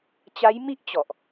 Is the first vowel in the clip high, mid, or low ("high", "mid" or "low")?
low